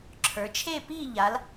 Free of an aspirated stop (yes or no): no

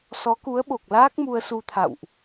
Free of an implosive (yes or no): no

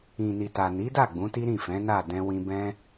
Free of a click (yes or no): yes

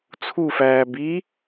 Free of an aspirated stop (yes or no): no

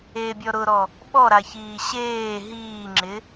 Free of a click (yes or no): no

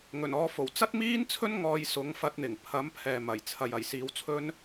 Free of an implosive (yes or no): yes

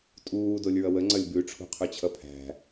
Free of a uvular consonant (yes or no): no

